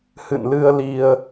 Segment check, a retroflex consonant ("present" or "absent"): absent